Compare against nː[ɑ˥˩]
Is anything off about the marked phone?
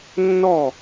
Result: yes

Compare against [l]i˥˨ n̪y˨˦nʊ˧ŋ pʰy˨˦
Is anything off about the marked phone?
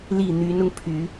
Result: no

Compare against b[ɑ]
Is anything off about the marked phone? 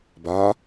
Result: yes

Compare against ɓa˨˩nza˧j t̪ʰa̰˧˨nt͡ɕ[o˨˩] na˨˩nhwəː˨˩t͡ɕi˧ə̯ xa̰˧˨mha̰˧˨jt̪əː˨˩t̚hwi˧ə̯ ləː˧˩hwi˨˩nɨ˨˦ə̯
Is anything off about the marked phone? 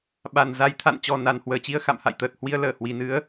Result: yes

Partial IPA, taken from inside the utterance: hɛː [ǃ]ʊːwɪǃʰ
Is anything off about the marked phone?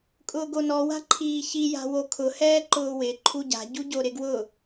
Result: no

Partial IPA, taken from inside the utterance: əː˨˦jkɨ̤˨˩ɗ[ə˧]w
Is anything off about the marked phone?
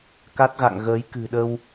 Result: no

